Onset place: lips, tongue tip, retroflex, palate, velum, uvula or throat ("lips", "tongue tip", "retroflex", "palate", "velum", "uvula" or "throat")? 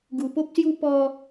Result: velum